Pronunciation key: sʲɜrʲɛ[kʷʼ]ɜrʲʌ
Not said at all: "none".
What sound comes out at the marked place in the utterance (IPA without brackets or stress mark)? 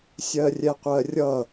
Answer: qʷ